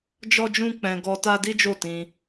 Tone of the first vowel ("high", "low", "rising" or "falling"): high